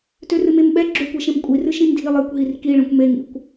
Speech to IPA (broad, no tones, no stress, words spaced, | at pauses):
tørɨmemɓɛ ɡ͡ǁøkʷeʃẽm kʷʼirɨ ʃĩmdʱi lˠekʷɦir kiɭɛ̃kʷ meŋḭkʷ